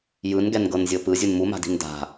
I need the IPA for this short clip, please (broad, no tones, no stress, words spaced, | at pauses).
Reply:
jɯn ɡɛnɡɤnzʲɤpɯ zʲunmuma̤di̤n da̤